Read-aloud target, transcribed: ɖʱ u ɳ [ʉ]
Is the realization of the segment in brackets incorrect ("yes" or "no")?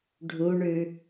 no